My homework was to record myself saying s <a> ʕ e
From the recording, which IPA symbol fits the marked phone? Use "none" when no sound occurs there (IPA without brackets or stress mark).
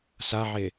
a